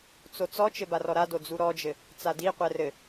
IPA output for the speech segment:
t͡s o t͡s ɔ t͡ʃ ɘ b a r ɔ ɾ a d o d͡z u ɾ ɔ d͡ʒ ɘ | t͡s a d i qʷ ɛ r ɘ

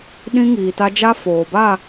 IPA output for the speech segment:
ɗ ĩ˦ ŋ iː˨ t a˦ d͡ʒ a˦ f oː˨ b a˦˨

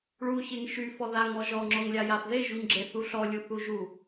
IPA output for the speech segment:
ɭ u ç e ŋ ʃ y f ɔ ð a ŋ ɔ ʒ ɔ ŋ͡ǁ ɔ ŋ lʲ a j a f ð e ʒ u ɲ ɡ͡ǁ e θ u ɬ ɔ lʲ u θ u ʒ u

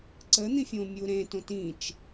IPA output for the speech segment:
ǀ ə n̪ ĩ fʲ õ mʲ u ɾ ẽ t õ t ĩ t͡ʃ

